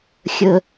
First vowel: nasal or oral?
oral